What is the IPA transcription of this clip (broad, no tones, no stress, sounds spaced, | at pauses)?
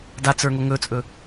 d a t͡s ə˞ ŋ o ŋ ɵ t͡sʼ ɵ